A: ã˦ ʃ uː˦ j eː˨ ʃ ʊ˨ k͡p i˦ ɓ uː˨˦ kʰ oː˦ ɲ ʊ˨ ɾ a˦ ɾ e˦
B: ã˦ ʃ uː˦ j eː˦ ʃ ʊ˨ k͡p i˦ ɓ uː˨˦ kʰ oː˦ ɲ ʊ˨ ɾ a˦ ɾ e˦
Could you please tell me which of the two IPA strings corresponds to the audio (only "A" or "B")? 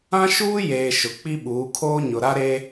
A